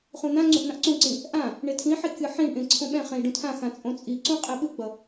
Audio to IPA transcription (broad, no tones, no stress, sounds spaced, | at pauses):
χ ũ n̪ ã ŋ͡ǀ ũ ʔ n̪ ã ʔ ǀ ũ ǀ ĩ | ʔ ã | ɳ e tʰ ĩ ħ i kʲ ɯ ħ ĩ ɳ ʔ ẽ ǀʰ õ ɓ ɛ̃ χ ẽ i̯ ɖ ũ tʰ ã x ã t͡sʼ õ t͡sʼ i ǀ ũ qʼ ɛ ɓ ɯ ɡ͡b ʌ